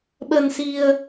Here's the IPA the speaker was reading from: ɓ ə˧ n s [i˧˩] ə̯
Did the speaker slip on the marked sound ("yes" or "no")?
yes